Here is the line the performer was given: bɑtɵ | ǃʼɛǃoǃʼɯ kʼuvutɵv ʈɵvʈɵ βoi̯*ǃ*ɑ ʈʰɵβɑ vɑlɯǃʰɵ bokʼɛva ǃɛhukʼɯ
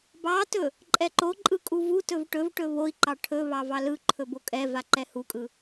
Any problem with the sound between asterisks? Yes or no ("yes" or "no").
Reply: no